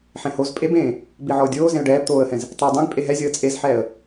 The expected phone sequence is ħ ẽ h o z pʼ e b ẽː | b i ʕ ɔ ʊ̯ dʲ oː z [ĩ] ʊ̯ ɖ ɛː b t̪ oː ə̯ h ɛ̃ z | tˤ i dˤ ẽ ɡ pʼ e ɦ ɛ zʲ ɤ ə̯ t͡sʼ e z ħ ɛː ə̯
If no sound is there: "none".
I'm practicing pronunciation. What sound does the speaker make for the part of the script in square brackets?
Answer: ẽ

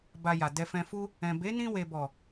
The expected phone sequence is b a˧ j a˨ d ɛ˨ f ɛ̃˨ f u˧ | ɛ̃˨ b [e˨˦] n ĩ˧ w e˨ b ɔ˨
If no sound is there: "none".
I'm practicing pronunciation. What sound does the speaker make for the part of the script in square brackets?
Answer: e˨˦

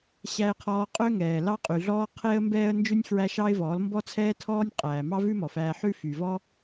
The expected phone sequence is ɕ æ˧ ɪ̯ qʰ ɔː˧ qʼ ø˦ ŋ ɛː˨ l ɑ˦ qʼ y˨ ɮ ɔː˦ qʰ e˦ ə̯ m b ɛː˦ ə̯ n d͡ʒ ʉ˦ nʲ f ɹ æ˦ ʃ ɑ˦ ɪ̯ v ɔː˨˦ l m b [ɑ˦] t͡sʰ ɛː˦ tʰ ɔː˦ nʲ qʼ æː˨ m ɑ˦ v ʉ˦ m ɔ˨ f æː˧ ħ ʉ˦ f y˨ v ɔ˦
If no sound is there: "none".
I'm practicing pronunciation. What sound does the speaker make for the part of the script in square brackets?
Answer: ɔ˦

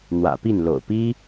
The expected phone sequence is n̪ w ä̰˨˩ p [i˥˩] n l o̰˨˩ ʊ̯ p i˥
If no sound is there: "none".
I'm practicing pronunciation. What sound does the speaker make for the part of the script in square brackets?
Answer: i˥˩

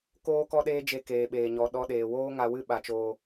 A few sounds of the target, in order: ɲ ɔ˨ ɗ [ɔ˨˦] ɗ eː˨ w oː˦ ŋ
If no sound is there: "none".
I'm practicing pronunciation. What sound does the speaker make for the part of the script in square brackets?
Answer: ɔ˧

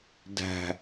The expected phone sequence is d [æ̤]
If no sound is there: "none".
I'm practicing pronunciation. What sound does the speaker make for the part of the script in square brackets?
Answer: æ̤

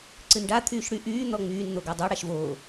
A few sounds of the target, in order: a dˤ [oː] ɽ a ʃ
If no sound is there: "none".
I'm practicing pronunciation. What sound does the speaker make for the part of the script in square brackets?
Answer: o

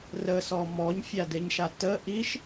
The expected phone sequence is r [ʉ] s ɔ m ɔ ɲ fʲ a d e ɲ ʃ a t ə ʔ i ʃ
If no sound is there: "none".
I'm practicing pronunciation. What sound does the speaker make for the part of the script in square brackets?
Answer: ə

